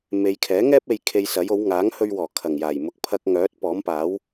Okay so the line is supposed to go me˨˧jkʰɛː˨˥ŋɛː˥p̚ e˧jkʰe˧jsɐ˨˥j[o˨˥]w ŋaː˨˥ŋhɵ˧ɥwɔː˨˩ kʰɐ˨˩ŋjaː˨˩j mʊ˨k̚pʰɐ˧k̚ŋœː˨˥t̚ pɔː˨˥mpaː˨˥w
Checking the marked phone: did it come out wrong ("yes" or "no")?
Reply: no